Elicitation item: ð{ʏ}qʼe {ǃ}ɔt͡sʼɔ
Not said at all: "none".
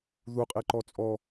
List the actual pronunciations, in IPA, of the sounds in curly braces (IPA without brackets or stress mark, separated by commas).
u, ǃ